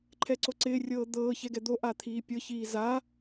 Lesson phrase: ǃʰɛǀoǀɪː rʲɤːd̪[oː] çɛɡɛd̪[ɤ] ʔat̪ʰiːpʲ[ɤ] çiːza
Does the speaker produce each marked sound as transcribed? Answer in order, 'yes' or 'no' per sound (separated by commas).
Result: no, no, yes